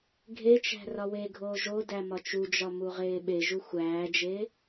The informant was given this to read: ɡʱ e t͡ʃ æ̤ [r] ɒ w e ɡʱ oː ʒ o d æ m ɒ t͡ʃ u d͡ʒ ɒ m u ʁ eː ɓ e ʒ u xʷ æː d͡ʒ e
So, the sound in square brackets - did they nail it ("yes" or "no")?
yes